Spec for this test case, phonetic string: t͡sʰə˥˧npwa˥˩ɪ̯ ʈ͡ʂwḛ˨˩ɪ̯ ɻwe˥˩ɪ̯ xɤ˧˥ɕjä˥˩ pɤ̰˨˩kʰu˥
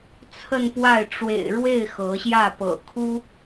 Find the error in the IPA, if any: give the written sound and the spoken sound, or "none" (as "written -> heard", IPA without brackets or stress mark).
none